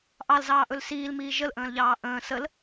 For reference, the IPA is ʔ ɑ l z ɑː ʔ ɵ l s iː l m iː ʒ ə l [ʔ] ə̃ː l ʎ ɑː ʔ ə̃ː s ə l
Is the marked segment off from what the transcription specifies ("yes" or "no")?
no